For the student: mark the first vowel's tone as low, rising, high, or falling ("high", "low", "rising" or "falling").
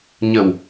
low